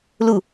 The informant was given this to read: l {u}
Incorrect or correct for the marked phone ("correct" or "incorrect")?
correct